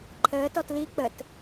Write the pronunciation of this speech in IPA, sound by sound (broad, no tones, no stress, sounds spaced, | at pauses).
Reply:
ǃʰ əː t ɔ t l i k͡p ə t